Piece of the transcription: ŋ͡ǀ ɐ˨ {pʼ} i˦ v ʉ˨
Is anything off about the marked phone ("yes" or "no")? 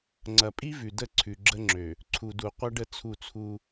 no